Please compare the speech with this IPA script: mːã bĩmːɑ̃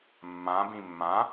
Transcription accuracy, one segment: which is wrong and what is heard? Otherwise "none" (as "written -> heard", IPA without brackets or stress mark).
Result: ɑ̃ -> ã